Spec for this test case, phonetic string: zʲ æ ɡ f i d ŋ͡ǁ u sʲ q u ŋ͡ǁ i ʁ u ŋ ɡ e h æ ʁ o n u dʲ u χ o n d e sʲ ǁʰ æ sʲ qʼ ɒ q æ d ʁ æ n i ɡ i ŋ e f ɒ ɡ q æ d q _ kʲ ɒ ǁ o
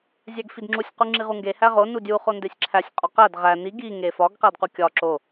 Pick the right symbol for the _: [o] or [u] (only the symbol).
u